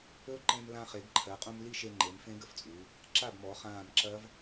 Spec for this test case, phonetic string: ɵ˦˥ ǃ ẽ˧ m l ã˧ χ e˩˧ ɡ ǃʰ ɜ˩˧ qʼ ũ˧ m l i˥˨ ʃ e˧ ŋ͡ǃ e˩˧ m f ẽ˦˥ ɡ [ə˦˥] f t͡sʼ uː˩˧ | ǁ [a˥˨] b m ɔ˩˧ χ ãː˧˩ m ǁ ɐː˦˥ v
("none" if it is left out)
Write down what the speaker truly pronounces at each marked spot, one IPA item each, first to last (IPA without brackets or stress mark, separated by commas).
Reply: ə˦˥, a˥˨